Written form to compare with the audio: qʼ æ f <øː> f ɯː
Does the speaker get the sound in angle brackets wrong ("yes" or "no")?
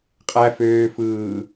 no